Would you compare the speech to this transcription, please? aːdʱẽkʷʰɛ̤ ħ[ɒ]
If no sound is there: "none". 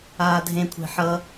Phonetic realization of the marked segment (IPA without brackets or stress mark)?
ʌ